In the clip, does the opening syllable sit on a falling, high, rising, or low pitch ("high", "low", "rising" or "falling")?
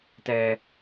high